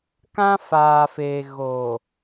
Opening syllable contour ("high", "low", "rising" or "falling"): high